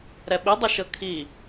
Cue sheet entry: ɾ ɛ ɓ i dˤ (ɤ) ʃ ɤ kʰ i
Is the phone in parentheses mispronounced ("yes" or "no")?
yes